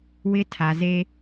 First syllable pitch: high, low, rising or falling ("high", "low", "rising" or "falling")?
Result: high